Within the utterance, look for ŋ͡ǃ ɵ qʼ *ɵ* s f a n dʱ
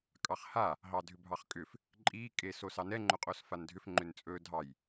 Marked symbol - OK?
no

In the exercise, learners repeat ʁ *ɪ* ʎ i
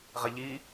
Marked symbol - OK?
yes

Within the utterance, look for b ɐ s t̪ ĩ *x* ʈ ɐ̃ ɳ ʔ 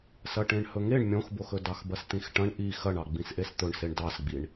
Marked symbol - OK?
yes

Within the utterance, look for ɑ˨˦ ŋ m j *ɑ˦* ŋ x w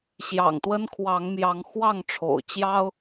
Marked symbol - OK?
no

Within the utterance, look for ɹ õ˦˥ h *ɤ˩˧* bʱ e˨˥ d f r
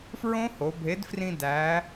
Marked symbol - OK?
no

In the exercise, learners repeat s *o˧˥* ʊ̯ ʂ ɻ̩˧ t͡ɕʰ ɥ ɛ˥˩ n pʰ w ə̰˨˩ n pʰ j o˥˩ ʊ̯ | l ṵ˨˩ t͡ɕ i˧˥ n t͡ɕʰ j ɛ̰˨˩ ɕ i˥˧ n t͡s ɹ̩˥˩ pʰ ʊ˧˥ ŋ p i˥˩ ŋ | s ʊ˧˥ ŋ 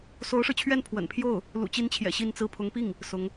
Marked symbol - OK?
yes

